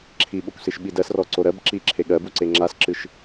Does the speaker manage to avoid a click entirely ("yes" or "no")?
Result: no